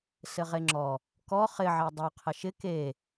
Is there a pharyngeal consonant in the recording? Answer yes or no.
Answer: yes